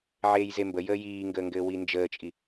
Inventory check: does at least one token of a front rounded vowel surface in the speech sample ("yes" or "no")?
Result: no